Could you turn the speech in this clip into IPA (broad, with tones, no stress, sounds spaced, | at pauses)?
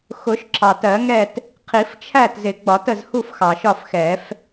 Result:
x ʊ˨˩˦ ʃ ǁʰ ɑ˩ t ɜ˨˩˦ ŋ ɛ˥˨ t | qʰ i˨˩˦ f t͡ʃʰ æ˥˨ t z ɪ˨˩˦ ɡ͡b ɒ˨˩˦ t ə˥˨ z h u˥˨ f x ɑ˩ ʃ ɒ˥˨ f x ɛ˨˩˦ f